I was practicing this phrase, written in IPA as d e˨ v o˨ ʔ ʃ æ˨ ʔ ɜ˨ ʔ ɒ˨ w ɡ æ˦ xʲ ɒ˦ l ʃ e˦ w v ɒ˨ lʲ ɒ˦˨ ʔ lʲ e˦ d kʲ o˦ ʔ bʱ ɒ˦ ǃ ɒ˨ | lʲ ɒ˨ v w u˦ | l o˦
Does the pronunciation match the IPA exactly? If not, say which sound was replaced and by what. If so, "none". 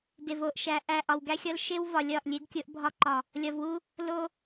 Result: ɜ˨ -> æ˨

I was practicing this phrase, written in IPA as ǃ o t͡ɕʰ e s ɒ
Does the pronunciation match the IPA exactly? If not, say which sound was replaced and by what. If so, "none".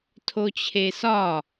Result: ǃ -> tʰ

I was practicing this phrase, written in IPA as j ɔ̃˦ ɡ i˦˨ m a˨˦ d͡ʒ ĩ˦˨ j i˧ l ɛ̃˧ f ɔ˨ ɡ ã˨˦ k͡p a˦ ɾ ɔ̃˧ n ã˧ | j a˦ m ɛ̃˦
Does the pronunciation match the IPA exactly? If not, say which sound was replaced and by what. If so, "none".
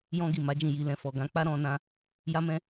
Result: none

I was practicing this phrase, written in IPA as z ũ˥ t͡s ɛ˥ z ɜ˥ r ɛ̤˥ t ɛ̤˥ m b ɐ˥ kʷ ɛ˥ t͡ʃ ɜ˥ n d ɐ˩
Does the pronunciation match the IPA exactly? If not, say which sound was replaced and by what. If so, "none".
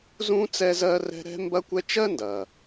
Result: t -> ɾ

